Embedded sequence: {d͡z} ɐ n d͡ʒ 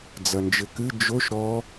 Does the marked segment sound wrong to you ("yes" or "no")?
no